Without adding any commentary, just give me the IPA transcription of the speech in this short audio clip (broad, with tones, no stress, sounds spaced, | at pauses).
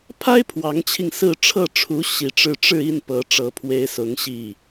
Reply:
pʰ a˥ ɪ̯ pʰ w ɑ˧˥ ŋ t͡ɕʰ i˧ ŋ s ɹ̩˥˧ ʈ͡ʂʰ ɤ˥˩ ʈ͡ʂʰ u˧˥ ɕ i˨˩ ʈ͡ʂ ɻ̩˥˧ ʈ͡ʂ ɻ̩˥˧ i˥˩ n p ɤ˧˥ ʈ͡ʂ ɤ˧˥ pʰ w e˧˥ ɪ̯ s ʊ˧˥ ŋ ɕ i˥˩